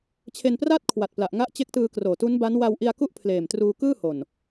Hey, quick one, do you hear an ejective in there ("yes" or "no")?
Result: no